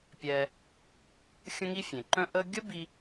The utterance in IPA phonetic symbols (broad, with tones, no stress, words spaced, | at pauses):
pʲɛ˧ | xʲə̃˥ŋi˥fʲẽ˩ǃœ̃˥ ʔə˥ ɡʲə˥bi˧